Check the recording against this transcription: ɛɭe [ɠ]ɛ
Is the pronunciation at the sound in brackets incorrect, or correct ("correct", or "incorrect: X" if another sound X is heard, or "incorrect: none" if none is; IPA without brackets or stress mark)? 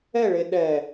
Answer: incorrect: ɗ